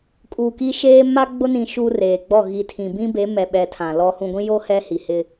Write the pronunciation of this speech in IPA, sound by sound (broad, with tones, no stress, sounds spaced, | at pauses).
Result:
kʼ uː˨ k i˦ ʃ eː˦ m a˦ ɡ͡b ʊ˦ n ĩ˨ ʃ u˦ r eː˨ ɡ͡b ɔ˦˨ ɣ i˨ tʰ ĩ˨ b ĩ˦ b e˨˦ m ɛ˨ ɓ ɛ˨ tʰ ã˨ l ɔ˦ h ũ˨ ɡʷ ĩ˦ j o˦ h ɛ˦ h i˨ h ɪ˦